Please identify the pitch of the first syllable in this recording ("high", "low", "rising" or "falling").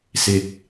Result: rising